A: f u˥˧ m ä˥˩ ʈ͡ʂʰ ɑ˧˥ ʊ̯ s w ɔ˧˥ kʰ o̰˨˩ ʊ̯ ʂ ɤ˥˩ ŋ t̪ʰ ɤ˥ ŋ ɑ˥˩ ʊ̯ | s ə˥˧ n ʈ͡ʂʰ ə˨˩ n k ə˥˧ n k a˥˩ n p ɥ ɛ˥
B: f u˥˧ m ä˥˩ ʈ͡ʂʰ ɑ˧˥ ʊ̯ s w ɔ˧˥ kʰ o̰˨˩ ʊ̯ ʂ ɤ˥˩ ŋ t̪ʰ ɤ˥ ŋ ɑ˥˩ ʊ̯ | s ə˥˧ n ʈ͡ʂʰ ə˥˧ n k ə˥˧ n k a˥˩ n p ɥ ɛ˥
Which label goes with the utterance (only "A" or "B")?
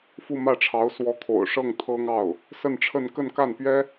B